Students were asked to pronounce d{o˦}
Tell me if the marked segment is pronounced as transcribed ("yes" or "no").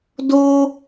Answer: yes